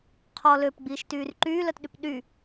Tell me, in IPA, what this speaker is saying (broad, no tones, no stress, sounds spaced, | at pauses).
qʰ ɔ l ø p ɡ͡b iː ʃ t yː r ǃ yː l œ t ɗ y p ɗ y